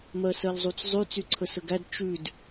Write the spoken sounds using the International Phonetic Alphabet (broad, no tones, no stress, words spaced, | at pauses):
mɜsɜlzˤut͡szˤʉ t͡syǀʰəsəɡæd t͡ʃʉd